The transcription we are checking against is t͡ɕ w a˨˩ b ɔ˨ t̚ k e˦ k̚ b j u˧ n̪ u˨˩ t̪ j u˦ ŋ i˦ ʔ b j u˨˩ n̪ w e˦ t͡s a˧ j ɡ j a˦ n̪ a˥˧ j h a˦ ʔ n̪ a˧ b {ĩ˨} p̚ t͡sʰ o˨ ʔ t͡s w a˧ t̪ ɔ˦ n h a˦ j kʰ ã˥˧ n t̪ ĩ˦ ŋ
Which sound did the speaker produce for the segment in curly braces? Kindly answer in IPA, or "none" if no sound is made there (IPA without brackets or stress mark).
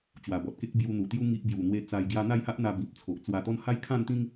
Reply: ĩ˨